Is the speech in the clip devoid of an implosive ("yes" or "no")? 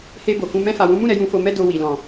yes